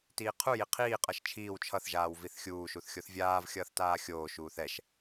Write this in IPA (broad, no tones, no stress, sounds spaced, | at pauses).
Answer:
t iː qʰ u j i qʰ iː qʼ ʌ ʃ t͡ʃʰ iː w t͡ʃʰ ʌ θ ʒ aː w v i θ xʲ uː ʃ u θ xʲ o θ vʲ aː v xʲ ʌː θ t aː xʲ oː ʃ uː θ ɛ ʃ